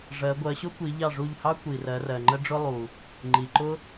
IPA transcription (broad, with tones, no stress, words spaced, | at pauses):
ʐɜ˨˦ ɡʷɜ˨˦ɕʊ˥kʷi˨˦ ʎɑ˦˨ʐu˦˨ʎhɑ˥ kʷi˨rɜ˨˦rɜ˨ ŋ͡ǃə˥ɖ͡ʐʊ˥lˠu˨ | ŋ͡ǃi˨ǃʊ˥